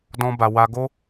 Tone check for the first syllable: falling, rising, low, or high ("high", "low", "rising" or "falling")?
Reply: high